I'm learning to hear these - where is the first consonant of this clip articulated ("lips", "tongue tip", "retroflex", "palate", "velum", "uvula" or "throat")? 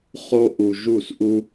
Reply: uvula